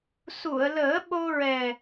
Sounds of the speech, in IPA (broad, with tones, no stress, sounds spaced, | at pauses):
s u˨˩˨ ə̯ l əː˨˩˦ ɓ o˧ ɹ ɛ˨˩